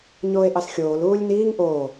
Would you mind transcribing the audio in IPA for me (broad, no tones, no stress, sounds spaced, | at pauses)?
ɲ oː e̯ ʔ ɑ s xʲ oː l uː lʲ n iː ŋ ʔ o